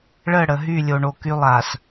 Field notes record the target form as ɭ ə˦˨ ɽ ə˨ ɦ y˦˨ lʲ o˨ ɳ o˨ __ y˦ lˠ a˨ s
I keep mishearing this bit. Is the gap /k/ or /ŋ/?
k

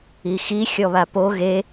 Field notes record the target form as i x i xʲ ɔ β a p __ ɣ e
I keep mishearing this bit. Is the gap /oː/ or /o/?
o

